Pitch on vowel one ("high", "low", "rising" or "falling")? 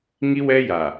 high